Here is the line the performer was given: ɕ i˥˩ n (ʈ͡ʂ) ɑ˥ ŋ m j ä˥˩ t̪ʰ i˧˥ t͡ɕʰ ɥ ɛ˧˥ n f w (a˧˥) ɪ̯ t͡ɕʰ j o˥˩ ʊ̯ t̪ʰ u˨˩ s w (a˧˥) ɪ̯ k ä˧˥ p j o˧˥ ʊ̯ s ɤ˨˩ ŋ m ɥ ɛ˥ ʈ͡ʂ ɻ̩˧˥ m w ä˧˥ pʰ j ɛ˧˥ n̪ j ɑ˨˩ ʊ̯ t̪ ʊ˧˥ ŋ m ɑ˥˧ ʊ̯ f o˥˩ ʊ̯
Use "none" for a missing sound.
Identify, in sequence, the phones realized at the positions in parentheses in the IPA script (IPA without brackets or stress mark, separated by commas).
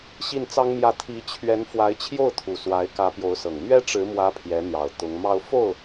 t͡s, a˧˥, a˧˥